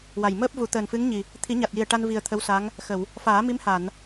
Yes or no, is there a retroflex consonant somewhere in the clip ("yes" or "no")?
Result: yes